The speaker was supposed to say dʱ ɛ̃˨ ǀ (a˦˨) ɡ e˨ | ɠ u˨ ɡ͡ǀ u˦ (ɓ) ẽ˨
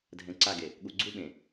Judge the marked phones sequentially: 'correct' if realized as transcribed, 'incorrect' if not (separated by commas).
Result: correct, correct